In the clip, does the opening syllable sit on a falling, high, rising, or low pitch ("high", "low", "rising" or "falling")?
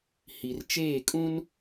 low